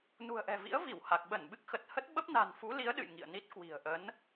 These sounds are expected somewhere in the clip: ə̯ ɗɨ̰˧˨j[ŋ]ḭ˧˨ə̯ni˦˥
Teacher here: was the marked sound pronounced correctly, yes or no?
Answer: yes